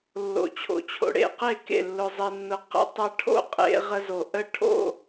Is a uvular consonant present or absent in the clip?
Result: present